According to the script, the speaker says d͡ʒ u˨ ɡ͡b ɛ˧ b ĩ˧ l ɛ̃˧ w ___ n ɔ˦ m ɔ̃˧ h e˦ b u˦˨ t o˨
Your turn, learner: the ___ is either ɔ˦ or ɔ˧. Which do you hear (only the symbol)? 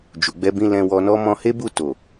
ɔ˧